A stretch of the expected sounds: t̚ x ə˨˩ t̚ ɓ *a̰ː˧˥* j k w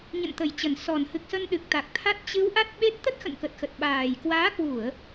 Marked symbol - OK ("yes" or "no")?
no